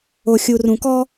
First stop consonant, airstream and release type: plain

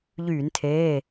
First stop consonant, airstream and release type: aspirated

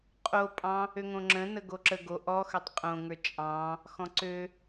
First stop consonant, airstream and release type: ejective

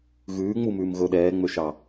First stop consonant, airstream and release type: implosive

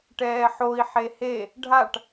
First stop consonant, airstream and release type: plain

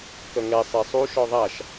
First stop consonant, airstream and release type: plain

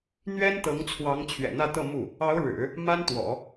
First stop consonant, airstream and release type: plain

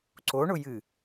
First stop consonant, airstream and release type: click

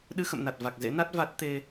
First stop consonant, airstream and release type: implosive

